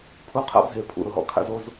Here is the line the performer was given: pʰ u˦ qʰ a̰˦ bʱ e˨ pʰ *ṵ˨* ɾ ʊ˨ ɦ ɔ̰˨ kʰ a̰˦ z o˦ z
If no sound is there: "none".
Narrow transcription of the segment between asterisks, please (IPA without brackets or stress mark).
ṵ˨